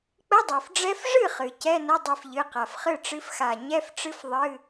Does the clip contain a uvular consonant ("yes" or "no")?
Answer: yes